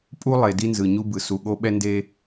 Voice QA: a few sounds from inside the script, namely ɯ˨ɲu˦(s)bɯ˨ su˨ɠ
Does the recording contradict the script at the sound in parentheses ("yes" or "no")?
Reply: yes